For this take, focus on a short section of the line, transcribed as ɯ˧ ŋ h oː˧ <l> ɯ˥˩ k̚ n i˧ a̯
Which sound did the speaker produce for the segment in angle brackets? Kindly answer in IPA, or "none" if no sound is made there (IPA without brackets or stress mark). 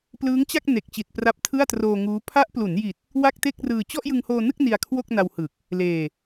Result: n